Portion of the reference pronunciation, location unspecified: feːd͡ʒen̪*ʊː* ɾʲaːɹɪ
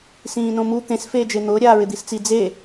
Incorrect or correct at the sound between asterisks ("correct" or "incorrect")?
correct